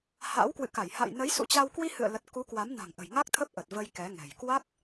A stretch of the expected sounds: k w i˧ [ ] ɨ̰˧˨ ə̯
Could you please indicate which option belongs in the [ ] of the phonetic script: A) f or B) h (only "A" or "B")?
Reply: B